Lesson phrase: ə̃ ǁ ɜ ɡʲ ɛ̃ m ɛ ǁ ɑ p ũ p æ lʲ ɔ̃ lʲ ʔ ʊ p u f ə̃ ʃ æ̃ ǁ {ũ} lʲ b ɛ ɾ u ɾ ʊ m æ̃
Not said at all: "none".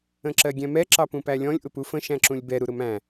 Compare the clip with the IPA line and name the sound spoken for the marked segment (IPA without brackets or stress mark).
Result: ũ